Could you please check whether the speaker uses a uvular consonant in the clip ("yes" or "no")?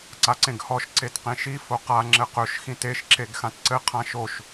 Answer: yes